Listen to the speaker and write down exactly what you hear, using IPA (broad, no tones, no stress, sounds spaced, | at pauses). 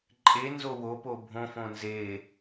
ǃʼ e n z o w o p o bʱ õ f õ n z e